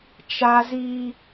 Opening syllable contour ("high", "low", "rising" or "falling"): high